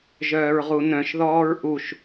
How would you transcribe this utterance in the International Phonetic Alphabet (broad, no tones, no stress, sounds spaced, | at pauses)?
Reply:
ʒ œː ɹ ʁ u n œ̃ ʃ ð ɔː ɹ ʔ u ʃ